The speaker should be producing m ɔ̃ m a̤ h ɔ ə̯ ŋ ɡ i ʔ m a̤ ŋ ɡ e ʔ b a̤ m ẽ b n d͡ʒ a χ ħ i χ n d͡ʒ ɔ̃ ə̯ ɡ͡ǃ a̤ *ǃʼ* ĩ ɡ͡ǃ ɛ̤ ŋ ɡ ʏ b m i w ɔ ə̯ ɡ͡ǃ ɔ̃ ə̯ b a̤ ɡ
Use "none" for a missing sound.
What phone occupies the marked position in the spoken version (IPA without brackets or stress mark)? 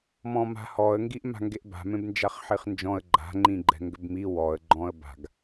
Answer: ŋ͡ǃ